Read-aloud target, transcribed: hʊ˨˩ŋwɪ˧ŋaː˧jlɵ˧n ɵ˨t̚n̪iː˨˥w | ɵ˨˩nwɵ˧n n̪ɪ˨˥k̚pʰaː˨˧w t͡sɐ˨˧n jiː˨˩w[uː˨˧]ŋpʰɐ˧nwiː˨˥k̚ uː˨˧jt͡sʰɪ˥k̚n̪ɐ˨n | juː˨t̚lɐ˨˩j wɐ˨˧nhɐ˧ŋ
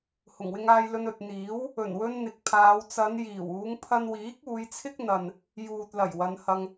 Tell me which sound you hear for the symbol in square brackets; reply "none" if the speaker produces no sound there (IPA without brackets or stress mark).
uː˨˧